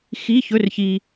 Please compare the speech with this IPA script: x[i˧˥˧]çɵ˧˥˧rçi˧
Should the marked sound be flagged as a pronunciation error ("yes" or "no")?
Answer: no